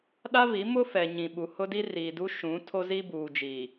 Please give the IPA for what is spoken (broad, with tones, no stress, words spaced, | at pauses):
ɗa˦vi˨˦ mʊ˦fɛ˨ ɲĩ˨ɓu˨ hʊ˦di˦riː˨du˦ ʃũ˨˦ tʰo˦zi˦buː˨d͡ʒiː˨